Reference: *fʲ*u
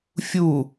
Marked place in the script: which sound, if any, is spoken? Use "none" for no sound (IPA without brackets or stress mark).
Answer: fʲ